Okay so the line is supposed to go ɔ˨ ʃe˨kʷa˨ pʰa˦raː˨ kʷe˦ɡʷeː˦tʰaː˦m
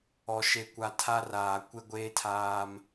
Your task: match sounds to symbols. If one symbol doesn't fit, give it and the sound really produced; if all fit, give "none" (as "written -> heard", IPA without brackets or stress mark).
pʰ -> tʰ